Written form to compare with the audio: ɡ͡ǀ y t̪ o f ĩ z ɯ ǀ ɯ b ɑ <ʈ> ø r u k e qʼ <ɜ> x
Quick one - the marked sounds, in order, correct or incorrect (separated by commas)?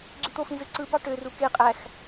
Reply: correct, incorrect